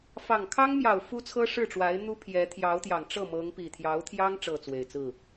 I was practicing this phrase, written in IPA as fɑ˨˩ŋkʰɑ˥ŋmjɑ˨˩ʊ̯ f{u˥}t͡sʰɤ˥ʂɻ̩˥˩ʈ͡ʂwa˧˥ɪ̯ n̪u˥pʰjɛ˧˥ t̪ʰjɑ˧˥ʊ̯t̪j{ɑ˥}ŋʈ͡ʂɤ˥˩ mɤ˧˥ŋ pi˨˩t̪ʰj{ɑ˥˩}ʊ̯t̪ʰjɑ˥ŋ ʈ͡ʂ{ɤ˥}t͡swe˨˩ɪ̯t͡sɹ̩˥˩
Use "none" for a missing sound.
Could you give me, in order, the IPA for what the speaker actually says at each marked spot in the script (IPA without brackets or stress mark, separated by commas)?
u˥, ɑ˨˩, ɑ˧˥, ɤ˥˩